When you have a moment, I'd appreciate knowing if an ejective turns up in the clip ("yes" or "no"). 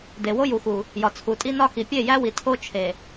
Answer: yes